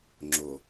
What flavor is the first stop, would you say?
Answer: click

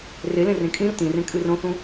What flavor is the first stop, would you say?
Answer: ejective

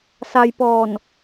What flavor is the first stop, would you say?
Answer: plain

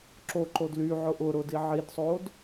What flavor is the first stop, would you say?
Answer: click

